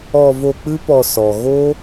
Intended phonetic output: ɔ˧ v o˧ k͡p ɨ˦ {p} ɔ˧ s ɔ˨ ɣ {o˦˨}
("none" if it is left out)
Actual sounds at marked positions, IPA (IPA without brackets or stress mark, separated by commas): p, o˦